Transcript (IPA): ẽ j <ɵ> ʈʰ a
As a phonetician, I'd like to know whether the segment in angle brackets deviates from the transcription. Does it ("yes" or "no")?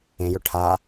no